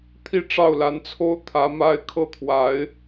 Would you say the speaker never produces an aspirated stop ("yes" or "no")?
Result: no